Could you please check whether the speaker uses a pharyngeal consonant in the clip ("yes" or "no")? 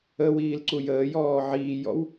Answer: yes